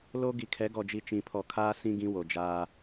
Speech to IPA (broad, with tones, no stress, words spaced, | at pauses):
lo˦ ɡi˨kʰɛ˨˦ɡɔ˨d͡ʒi˨ t͡ʃĩ˨pʰɔ˨kʰaː˦ sĩ˦ ɡĩ˦wo˨d͡ʒaː˦